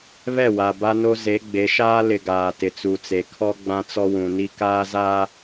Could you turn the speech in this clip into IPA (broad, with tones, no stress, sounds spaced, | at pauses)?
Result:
β ɛ˦˨ w a˨ b a˦ n o˦ z e˨˦ ɡ͡b e˨˦ ʃ aː˦ l ɪ˨ ɡ aː˨ t ɪ˨ t͡s u˨ t͡s e˨ kʰ ɔ˦ ɡ͡b ã˦ t͡s ɔ˦ w ũ˨ n i˦ k aː˦ z aː˦